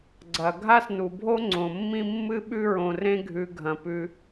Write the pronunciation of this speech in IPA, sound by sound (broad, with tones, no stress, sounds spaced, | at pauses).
ɡ͡ǀ ɐ˩ ɡʱ a˥ s n u˩ bʱ o˥ ŋ͡ǀ õ˩ mː ĩ˦ mː ɨ˥ ɓ ʉ˦ ɹ õ˨ r ẽ˦ ɡʱ ʉ˨ ɡʱ ɐ̃˩ p ʉ˨